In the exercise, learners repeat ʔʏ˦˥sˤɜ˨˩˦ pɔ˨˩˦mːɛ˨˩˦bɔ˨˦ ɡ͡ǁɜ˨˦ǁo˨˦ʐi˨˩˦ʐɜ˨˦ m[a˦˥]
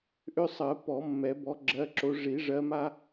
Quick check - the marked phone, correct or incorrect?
correct